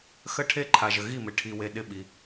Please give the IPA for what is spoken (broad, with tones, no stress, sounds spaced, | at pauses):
x ə˧˩ ʈʰ e˧˩ ǃʰ a˩ ʒ ə˩ ɣ i˧˩ m ɪ˩ ʈʰ i˩ w e˩ ɗ ɪ˧˩ ɓ i˩